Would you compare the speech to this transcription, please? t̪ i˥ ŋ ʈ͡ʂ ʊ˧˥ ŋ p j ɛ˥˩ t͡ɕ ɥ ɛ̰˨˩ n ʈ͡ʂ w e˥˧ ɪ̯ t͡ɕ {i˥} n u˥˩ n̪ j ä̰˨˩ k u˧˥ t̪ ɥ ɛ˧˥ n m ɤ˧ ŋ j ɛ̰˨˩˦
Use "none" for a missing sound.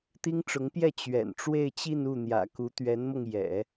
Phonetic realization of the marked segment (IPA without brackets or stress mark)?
i˥˧